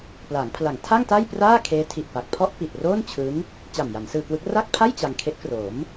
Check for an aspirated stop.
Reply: present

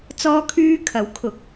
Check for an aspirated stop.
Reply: present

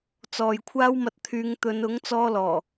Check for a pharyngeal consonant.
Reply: absent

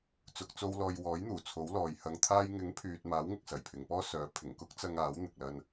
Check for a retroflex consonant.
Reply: absent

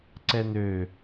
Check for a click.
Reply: present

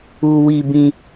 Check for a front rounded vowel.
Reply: absent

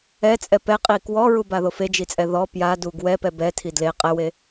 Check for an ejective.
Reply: present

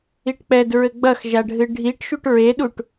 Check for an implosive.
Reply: present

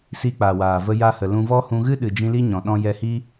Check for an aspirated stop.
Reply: absent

